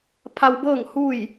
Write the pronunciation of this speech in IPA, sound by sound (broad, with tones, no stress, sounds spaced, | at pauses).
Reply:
pʰ a˧ w b ɤː˥˨ ŋ h u˥˨ j